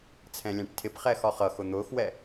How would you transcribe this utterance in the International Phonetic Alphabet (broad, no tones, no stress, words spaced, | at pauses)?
t͡sʰɛ̃lʲæ̃ʈtʰɪpχɛːx ɒχʌxʊ n̪ʊːxwɛ